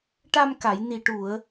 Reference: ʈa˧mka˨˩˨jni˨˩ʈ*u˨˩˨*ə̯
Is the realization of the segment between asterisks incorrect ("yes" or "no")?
no